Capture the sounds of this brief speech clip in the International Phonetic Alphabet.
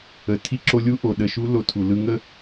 ə˩ tʰ i˧ ǁ o˧ lʲ u˧˥ ʔ o˩ ɗ ə˩˧ ʃ u˧˥ l o˧ tʰ u˩ l ɯ˧ ŋ ə˥

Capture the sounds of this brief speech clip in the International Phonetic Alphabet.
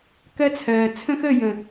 k ɜ˦ t͡sʰ ɜː˨ t͡sʰ ə̃˦ x əː˦˨ j ə̃˨

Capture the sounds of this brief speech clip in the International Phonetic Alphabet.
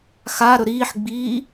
x a ɾ ɵ ɾ iː ħ ɡ͡b iː

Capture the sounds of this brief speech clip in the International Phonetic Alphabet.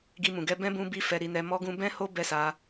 ɡ i˧ m ũ˨ ɡ ɛ˧ b ɛ̃˦ b ũ˦ b i˦ f ɛ˧ ɾ i˧ n ɛ˧ m ɔ˦ ɡ ũ˦ b ɛ̃˦ h o˦ b ɛ˦ s a˧

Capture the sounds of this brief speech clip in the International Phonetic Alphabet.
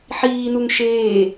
ħ iː n u ŋ ʃ eː

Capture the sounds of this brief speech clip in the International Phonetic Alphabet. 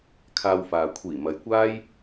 kʰ aː˧ w f aː˨ kʷʰ iː˨˩ m ɐ˨ j kʷ aː˥ j

